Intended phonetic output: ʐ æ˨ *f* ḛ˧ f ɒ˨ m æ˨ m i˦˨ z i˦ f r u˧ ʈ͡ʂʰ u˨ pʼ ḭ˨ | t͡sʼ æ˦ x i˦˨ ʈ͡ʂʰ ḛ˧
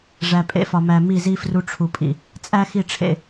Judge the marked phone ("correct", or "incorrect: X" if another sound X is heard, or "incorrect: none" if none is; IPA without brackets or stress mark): incorrect: pʼ